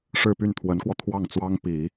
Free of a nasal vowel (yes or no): yes